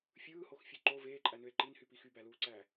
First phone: fʲ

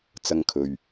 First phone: t͡s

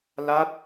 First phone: l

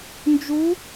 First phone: n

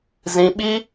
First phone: z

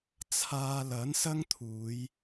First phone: t͡sʰ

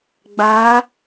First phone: ɡ͡b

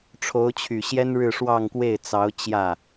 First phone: ʈ͡ʂʰ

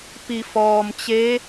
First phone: p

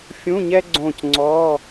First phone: fʲ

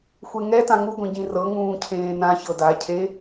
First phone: xʷ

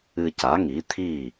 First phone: ɨ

